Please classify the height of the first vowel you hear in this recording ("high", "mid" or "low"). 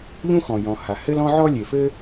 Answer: high